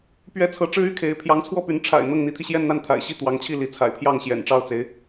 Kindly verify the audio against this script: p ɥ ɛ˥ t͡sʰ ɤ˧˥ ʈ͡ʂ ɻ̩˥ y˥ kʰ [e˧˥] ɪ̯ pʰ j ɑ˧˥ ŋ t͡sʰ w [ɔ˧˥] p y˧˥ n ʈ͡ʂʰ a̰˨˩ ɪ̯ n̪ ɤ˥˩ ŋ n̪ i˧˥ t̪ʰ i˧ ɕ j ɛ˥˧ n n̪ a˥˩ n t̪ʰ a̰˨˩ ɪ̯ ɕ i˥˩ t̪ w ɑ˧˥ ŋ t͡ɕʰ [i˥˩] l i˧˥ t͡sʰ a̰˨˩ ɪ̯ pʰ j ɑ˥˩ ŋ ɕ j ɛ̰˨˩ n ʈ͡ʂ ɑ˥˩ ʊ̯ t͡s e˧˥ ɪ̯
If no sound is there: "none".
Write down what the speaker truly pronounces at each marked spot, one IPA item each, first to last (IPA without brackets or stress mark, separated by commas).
e˧˥, ɔ˥˩, i˥˩